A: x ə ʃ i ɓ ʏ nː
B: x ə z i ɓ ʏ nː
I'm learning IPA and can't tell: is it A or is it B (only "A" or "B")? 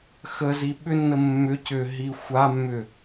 B